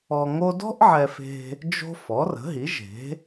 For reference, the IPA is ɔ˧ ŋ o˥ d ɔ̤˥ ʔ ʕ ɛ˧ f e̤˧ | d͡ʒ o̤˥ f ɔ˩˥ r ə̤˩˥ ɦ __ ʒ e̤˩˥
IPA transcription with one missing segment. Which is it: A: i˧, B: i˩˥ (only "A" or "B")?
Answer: B